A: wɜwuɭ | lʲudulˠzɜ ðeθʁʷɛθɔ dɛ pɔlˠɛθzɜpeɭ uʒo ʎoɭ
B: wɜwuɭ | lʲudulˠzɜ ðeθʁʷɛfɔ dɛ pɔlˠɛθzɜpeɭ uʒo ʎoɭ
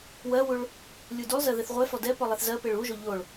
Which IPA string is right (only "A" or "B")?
B